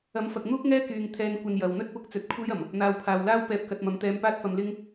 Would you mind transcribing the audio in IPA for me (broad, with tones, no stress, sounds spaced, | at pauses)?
ɐ˨˥ m f ɐ˨ k̚ n̪ uː˥ k̚ ŋ ɛː˥ k yː˨ ŋ t̪ʰ ɛː˧ n kʷ ɐ˧ n j ɐ˨ w n̪ ɵ˥ t̚ p ʊ˨˥ k̚ t͡s ɵ˨˥ t̚ kʷʰ e˥ j ɐ˨˩ m | n̪ aː˨ w pʰ aː˨ w l aː˥ w p ɛː˨˥ p̚ k ɐ˨ t̚ m ɐ˨˥ m t̪ ɛː˧ m p aː˥ t̚ f ɐ˧ m l ɪ˥ ŋ